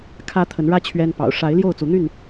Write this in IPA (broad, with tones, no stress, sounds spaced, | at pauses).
kʰ ä˦ t̪ʰ ə˨˦ n ɻ ä˦ t͡ɕʰ ɥ ɛ˦ n p ɑ̰˨˩ ʊ̯ ʂ a˨˦ ɪ̯ l j o˥˨ ʊ̯ t͡s u˨˦ n̪ y˥˨ n